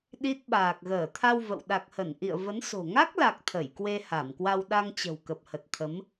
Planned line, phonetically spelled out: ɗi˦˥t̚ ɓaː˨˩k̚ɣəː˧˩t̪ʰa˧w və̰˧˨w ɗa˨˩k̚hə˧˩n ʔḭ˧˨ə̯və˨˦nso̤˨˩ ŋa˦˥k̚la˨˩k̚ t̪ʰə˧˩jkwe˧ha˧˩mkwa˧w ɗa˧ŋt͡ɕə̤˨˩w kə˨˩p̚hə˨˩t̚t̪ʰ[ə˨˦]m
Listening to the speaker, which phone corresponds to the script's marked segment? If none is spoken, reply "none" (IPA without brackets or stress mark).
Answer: ə˨˦